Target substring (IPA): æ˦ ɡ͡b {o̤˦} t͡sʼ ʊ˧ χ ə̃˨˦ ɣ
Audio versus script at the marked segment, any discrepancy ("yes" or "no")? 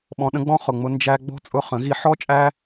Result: yes